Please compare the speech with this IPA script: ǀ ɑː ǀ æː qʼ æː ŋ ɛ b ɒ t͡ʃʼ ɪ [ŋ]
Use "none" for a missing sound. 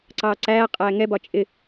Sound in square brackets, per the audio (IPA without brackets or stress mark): none